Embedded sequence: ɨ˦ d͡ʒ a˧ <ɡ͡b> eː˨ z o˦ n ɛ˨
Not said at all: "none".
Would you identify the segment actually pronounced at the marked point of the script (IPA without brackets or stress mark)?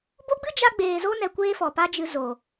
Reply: ɡ͡b